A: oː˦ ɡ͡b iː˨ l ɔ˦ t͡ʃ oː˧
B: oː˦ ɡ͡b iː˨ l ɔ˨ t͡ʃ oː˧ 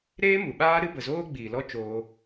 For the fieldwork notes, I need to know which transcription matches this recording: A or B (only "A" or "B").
A